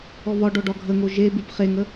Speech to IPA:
ɔ β ɒ ɖ ɔ ɖ ɒ ɡʱ ə ŋ o ʒ e b ʉ b χ e ŋ ə

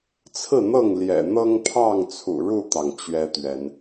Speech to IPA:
t͡sʰ ɹ̩˥˨ n̪ ɤ˥˨ ŋ l j ɛ̰˨˩ n̪ ɤ˦ ŋ pʰ ɑ˥˨ ŋ t͡sʰ ṵ˨˩ ɻ u˥˨ t̪ ɑ˩ ŋ t͡ɕ ɥ ɛ˦ t̪ ɥ ɛ˨˦ n

